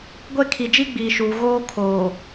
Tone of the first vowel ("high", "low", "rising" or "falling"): falling